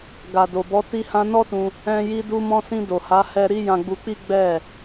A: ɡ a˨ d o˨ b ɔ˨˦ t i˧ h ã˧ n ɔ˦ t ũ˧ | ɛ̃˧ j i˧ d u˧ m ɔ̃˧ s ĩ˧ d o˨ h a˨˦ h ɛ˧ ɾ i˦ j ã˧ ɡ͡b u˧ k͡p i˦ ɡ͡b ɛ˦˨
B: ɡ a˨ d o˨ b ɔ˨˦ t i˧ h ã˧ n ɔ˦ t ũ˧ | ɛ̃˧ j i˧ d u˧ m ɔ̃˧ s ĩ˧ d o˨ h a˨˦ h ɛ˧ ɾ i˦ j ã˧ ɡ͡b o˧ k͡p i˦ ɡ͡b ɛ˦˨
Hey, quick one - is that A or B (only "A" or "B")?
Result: A